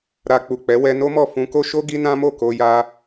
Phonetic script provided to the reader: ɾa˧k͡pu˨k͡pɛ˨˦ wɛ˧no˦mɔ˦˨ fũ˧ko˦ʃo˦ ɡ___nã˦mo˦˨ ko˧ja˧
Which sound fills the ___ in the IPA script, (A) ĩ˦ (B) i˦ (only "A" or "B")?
B